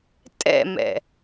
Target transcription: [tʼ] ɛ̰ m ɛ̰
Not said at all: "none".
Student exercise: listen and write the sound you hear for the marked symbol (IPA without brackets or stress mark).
tʼ